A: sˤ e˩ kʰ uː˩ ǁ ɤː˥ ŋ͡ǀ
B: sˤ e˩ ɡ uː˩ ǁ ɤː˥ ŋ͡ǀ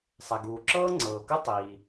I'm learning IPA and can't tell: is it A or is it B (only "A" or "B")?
B